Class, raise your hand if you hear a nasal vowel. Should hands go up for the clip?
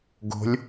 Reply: no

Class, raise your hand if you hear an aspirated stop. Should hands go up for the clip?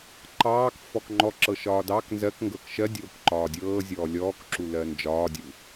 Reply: no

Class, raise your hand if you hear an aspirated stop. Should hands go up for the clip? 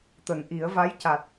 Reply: no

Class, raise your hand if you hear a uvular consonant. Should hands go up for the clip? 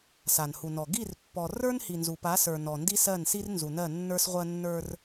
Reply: yes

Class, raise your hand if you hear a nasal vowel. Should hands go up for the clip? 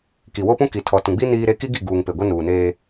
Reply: yes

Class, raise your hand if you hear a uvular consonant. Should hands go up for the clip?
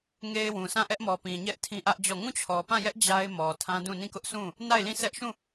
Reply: no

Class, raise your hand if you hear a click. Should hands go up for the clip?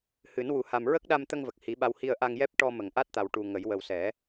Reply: no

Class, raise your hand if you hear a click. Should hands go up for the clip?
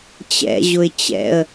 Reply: no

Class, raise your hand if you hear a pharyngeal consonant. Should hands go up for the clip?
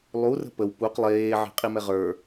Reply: yes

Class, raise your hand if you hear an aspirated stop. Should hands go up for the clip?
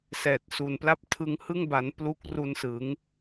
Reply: yes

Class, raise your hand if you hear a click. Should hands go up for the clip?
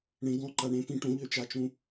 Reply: yes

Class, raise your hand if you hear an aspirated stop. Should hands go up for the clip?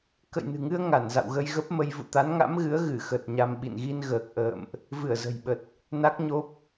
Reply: no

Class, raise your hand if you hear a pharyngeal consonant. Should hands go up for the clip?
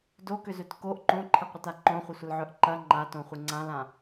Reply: yes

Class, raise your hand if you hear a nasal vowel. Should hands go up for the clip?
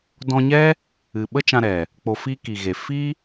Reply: yes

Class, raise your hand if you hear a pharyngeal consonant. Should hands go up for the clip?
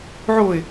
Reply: yes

